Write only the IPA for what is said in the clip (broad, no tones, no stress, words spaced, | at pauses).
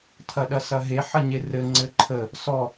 tʰɐɗɐsɐɦe ħɐɲerɘ ŋ͡ǀɘǃʰə | sɔ